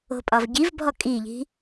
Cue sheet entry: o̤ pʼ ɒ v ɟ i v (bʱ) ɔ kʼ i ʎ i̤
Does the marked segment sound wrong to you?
no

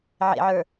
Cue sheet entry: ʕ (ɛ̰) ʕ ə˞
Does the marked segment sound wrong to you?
yes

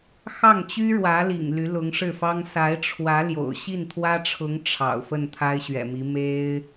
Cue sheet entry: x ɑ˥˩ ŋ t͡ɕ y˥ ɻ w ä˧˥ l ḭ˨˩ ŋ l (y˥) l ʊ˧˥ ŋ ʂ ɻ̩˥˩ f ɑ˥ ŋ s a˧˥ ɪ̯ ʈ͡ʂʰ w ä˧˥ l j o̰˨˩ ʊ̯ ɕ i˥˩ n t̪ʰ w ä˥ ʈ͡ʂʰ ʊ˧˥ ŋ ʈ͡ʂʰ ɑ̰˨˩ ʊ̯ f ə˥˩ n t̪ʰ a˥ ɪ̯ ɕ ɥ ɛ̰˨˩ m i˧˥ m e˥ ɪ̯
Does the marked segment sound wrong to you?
yes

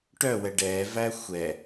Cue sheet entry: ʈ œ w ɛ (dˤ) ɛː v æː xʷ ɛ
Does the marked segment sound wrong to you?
yes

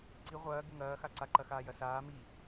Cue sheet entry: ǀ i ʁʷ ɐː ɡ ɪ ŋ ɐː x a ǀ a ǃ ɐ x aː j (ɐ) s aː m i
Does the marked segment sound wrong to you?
no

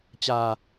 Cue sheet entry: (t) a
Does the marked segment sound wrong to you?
yes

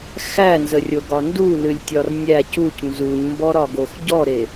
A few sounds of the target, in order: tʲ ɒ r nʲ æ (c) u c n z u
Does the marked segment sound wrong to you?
no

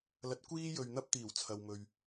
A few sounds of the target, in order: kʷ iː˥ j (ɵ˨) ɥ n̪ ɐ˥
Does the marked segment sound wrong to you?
no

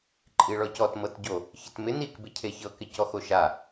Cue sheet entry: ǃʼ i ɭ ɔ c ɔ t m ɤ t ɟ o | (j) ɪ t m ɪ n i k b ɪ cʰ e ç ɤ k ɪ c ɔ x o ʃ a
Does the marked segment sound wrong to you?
yes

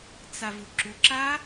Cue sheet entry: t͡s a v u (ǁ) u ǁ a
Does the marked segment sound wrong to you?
no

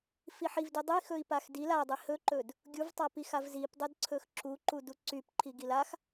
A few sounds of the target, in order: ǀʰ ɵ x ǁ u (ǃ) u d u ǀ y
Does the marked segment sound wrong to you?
no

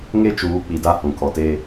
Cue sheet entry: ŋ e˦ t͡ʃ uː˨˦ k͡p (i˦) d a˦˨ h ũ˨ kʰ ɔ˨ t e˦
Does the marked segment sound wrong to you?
yes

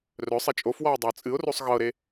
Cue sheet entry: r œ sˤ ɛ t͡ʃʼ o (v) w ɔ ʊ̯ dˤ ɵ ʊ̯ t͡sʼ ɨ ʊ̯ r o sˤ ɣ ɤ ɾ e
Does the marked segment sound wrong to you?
yes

